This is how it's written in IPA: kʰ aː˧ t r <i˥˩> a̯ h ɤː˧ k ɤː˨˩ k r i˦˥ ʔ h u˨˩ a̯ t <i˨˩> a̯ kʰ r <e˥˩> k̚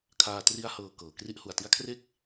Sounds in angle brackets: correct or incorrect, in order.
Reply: incorrect, incorrect, correct

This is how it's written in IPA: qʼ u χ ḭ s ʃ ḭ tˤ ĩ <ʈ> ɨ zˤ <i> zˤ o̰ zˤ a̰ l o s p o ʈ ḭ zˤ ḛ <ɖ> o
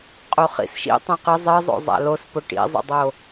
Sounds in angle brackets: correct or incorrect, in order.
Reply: incorrect, incorrect, incorrect

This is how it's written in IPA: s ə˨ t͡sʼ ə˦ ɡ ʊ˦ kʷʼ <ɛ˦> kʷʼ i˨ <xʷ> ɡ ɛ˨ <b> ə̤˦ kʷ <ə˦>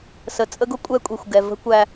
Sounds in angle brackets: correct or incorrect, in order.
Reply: correct, correct, incorrect, incorrect

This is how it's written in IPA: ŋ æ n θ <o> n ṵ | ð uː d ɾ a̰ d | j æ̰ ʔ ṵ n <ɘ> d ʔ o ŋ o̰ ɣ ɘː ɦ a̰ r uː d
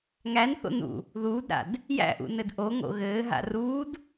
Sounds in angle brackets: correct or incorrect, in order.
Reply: incorrect, correct

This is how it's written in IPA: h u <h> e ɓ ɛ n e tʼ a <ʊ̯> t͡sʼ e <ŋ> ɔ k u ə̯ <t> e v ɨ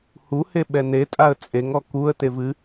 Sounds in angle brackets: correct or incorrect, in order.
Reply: correct, incorrect, correct, correct

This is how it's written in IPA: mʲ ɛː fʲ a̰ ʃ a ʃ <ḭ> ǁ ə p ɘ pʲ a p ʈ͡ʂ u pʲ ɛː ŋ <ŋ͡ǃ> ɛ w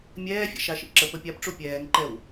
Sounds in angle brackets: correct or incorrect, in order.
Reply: correct, incorrect

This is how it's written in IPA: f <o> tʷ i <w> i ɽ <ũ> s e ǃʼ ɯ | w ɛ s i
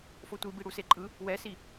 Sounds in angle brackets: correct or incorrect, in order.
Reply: correct, incorrect, incorrect

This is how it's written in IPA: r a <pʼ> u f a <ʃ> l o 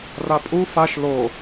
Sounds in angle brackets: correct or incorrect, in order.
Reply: correct, correct

